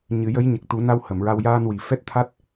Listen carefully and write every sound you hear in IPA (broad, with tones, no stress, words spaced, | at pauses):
ɲɨ˨˩˦jə˧˥j ɲə˨˩k̚t̪u˨˩˦na˧w hə˨˩˨mɹa˧w jaː˧nwi˨˩ fɛ˦˥t̚t̪ʰa˦˥t̚